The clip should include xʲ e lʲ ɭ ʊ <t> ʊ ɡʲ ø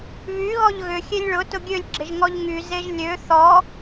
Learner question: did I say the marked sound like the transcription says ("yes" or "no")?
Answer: yes